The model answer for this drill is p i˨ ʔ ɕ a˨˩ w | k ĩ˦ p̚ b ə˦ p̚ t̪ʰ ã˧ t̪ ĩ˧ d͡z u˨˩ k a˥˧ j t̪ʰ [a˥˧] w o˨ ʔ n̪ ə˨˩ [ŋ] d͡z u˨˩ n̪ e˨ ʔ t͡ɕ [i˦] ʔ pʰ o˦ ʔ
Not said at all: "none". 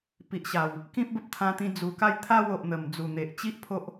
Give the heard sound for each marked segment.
a˥˧, m, i˦

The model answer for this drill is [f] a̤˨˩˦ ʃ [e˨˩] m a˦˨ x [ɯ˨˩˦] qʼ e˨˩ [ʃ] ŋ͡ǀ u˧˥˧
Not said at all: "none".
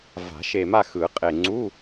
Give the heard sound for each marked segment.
v, e˨˩, ɯ˨˩˦, none

